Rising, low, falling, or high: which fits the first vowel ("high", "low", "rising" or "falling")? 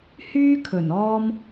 high